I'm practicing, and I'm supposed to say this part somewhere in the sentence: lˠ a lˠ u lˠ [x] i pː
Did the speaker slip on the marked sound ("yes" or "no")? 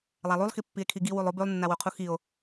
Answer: no